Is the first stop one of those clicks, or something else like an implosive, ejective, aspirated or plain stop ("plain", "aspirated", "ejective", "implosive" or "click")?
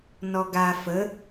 plain